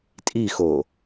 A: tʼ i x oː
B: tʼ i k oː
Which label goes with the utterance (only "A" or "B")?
A